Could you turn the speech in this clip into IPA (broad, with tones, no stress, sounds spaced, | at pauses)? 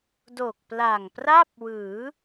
d o˨˩ k̚ p l a˨˩ ŋ p r a˥˩ p̚ w ɯː˩˦